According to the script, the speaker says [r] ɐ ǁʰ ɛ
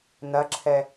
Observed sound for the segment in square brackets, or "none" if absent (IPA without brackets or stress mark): n̪